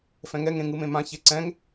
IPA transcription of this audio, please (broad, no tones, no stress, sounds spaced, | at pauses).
f ɛ̃ ŋ ɛ ŋ ẽ ŋ ɯ m ẽ m ã ç e ǀ ɛ̃ ŋ